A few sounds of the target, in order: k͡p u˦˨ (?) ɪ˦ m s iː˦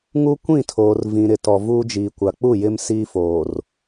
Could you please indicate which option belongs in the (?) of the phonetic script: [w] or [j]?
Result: j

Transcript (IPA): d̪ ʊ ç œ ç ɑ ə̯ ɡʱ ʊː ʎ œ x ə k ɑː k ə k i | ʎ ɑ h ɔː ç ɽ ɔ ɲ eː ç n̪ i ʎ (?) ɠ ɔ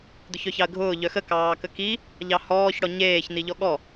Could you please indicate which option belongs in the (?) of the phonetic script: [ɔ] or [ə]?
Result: ɔ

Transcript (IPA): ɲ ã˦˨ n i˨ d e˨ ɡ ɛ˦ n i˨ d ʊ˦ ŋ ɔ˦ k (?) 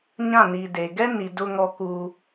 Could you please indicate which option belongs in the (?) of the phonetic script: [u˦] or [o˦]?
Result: u˦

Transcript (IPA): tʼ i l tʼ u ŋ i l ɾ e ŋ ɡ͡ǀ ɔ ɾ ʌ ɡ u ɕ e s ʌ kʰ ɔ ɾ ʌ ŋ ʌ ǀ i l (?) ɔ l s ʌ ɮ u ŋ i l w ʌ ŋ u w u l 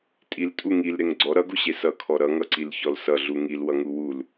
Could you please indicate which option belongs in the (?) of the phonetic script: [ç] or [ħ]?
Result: ç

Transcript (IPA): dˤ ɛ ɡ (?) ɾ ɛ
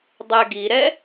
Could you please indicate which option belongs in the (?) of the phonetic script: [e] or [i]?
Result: i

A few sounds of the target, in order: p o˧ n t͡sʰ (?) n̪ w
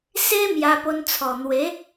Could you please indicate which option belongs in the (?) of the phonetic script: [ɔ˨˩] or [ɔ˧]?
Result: ɔ˨˩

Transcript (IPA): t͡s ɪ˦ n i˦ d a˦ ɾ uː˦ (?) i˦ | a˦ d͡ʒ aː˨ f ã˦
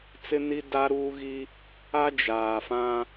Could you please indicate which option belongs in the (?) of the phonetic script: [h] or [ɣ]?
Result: ɣ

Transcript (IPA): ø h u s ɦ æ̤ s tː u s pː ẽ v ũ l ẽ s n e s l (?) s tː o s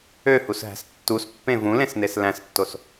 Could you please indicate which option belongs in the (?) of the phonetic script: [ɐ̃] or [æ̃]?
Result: æ̃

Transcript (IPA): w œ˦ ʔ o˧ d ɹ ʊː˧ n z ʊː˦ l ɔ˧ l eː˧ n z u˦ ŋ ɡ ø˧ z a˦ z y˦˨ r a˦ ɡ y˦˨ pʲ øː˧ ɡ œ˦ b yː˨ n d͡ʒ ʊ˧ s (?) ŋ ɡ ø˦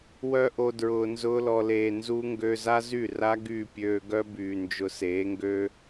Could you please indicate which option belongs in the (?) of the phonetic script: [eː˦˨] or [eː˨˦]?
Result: eː˨˦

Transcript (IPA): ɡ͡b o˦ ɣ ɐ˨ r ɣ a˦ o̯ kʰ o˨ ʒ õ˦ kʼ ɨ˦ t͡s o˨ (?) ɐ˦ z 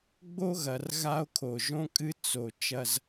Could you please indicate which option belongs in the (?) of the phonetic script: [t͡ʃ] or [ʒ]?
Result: t͡ʃ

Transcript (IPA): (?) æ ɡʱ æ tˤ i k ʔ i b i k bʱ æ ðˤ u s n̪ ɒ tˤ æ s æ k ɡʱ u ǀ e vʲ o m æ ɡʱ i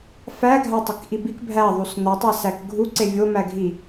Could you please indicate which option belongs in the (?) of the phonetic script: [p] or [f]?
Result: f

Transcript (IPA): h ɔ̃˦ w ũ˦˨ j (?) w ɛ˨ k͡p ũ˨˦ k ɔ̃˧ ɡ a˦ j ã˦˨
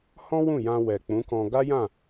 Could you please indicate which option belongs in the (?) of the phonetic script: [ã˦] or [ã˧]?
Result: ã˧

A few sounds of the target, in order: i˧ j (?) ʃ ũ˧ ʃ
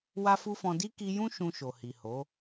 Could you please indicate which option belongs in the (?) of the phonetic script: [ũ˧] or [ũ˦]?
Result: ũ˦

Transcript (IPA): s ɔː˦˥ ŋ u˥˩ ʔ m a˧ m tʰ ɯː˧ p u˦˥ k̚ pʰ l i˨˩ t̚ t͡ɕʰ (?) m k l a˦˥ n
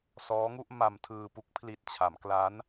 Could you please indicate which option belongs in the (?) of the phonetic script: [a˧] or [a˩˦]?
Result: a˩˦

